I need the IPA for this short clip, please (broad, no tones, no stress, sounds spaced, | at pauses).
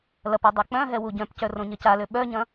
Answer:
l ɐ p œ dˤ a k͡p œ̃ ɦ ɛ w u ɟ œ̃ p c œ r õ ɲ ɐ c a l ø ɓ œ ɲ ɐ̃